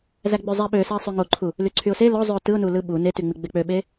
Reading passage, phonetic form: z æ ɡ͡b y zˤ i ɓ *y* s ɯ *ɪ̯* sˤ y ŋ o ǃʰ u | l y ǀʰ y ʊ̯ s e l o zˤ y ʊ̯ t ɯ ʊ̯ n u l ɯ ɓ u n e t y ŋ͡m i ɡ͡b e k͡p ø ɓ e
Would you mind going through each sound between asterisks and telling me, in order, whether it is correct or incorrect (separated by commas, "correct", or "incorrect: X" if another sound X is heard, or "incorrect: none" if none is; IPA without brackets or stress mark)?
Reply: incorrect: ø, correct